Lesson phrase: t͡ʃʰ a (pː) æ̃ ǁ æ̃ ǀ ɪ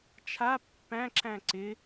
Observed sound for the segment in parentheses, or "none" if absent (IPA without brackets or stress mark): pː